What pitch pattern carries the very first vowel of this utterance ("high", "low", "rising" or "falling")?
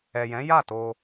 low